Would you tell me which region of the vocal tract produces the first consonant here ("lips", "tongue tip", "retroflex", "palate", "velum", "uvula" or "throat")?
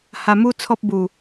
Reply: throat